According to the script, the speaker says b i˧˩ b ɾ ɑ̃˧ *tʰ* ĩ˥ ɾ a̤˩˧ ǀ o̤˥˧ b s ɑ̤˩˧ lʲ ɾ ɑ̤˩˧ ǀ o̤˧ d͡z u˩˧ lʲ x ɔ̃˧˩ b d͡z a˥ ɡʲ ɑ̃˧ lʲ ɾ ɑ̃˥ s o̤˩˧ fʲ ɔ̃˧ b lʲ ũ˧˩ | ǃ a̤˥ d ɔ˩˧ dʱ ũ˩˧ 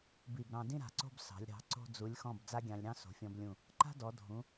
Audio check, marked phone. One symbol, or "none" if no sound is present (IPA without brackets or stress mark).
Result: d